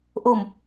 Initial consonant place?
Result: glottal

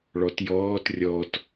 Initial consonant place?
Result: retroflex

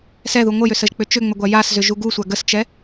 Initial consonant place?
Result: alveolar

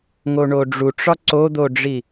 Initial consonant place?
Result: velar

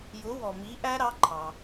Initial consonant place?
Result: palatal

